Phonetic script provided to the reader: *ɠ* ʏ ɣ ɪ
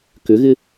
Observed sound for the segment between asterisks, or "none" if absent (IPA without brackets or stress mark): k